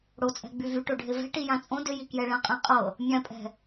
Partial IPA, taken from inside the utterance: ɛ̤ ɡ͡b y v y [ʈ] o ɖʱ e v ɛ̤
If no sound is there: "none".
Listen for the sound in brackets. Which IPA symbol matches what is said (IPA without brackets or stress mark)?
ʈ